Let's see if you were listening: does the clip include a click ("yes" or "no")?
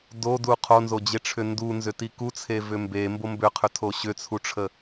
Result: no